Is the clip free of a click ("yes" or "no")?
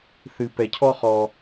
yes